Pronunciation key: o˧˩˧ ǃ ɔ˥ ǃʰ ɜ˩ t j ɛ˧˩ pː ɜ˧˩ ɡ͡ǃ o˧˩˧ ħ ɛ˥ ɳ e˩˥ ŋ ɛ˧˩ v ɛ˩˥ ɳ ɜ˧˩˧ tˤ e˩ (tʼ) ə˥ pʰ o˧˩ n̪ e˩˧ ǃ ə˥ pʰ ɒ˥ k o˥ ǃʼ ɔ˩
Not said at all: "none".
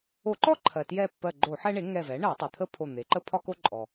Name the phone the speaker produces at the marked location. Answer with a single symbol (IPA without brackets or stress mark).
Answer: t̪ʰ